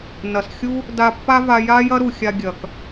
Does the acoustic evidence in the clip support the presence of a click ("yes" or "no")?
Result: no